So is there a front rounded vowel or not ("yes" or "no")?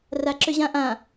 yes